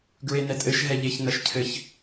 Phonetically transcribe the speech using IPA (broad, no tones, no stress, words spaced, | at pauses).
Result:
ɡɹenɛtʼɘʃ ɦɛʎeç nɐʃcʰɘç